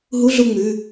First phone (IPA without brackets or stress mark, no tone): ɦ